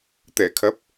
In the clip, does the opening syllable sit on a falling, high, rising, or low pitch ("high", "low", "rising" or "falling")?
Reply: low